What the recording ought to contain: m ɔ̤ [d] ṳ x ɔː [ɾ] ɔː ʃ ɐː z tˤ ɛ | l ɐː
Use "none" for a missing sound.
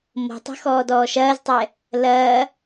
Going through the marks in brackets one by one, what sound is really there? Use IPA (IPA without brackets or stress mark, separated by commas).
tˤ, d